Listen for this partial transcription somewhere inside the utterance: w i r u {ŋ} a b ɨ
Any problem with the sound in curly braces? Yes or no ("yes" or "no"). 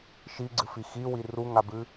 no